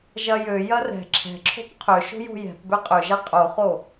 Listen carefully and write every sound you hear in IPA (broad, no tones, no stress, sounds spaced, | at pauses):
ʒ ɐ j ø j ɐ r ɛ̤ ǁʰ ɛ̤ ǁʰ o̤ p qʰ ø ʃ o̤ j o̤ j ɛ̤ p b ø qʼ ø ʒ ɛ qʼ o χ o